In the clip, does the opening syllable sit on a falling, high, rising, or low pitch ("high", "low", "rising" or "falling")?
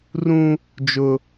high